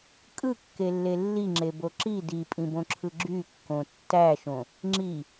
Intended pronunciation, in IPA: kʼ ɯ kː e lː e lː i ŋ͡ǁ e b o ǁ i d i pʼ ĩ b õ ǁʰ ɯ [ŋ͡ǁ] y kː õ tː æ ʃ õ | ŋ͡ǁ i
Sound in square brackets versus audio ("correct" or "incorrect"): incorrect